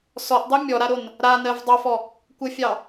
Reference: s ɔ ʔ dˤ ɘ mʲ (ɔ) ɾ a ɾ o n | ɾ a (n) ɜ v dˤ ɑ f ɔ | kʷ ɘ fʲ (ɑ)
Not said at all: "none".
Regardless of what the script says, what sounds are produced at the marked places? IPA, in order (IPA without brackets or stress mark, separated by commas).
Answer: ɔ, n, ɑ